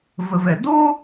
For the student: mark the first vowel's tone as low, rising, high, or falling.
low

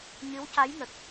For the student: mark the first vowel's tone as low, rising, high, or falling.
rising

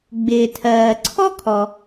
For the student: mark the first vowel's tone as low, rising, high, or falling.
low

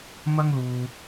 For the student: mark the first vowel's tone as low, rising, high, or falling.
high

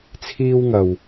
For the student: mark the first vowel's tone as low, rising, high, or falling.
high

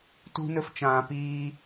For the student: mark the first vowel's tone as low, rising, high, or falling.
high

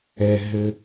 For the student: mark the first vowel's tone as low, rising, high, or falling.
low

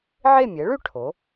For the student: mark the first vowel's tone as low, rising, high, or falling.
falling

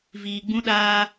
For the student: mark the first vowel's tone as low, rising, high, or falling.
low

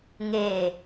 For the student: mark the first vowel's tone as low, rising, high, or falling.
low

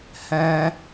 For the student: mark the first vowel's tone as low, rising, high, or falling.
high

